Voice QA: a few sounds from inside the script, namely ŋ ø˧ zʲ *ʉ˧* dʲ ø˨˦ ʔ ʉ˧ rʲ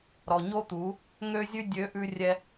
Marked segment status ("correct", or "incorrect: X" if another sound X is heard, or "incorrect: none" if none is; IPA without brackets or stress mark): correct